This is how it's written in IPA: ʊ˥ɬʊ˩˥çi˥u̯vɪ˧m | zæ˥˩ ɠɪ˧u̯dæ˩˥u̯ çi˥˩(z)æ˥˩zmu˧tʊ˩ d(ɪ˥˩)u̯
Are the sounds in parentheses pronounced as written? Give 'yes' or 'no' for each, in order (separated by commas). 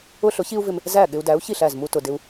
no, no